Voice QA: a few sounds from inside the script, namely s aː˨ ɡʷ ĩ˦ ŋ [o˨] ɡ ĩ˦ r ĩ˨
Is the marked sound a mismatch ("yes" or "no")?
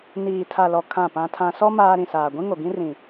no